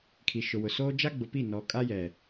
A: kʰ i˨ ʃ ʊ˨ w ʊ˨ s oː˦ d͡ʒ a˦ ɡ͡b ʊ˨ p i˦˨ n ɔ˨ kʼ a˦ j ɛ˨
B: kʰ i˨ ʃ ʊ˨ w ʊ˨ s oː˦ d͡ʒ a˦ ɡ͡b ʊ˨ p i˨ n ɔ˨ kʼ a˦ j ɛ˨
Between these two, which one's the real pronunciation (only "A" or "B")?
A